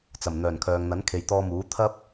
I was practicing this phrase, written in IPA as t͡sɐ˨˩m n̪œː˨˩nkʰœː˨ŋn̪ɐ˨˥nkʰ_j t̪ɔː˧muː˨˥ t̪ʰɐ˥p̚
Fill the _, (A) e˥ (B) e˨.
B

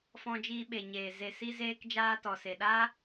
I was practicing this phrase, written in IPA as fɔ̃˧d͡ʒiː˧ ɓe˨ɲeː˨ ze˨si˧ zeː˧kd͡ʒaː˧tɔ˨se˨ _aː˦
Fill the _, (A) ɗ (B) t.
A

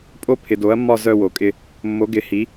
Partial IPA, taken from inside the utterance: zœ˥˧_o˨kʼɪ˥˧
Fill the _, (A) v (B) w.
B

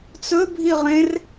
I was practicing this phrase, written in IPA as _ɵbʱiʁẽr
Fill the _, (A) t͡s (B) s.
A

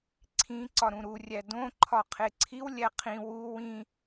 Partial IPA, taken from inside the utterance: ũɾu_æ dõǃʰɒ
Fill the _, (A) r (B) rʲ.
B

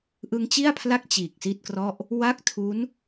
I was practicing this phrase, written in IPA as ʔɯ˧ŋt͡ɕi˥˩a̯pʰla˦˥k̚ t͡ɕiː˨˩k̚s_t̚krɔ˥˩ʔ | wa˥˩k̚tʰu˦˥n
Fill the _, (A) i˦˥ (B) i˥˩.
B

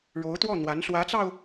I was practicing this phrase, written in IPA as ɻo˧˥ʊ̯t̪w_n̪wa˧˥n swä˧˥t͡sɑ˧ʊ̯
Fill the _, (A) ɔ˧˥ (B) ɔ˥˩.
B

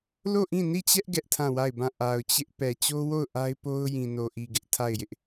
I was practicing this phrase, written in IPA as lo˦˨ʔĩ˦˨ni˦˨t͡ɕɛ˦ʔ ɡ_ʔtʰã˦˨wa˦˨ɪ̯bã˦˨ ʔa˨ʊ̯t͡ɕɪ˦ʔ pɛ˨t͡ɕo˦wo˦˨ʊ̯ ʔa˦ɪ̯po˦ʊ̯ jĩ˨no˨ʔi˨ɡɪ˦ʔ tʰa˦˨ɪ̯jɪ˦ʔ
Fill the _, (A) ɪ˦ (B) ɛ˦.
B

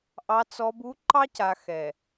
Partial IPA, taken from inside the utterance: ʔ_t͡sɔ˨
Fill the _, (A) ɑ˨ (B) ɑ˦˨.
A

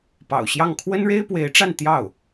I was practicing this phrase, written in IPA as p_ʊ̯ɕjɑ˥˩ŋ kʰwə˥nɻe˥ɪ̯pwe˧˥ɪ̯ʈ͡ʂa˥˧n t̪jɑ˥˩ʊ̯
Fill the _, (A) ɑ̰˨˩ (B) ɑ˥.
A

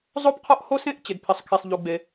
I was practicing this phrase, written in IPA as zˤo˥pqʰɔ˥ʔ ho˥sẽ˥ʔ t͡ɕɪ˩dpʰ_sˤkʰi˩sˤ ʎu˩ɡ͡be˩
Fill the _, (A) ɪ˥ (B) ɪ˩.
B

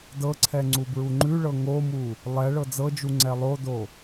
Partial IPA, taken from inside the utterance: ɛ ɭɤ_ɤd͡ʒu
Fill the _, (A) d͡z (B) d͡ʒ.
A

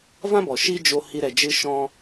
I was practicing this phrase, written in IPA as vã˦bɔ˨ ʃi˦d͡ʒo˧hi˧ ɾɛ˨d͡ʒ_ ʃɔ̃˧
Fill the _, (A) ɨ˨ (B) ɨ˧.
B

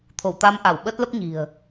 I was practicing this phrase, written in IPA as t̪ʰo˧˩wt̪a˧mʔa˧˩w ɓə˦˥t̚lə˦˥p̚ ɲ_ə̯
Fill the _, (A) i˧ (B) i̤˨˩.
B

